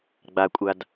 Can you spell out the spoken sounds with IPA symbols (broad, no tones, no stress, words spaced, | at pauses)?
ɡ͡bakʷʼad